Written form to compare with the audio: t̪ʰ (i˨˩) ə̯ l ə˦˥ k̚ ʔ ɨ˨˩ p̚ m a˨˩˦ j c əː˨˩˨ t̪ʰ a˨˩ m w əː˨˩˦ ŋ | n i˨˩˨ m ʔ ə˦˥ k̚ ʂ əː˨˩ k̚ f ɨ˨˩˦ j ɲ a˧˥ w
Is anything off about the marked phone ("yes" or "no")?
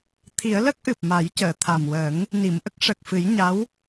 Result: yes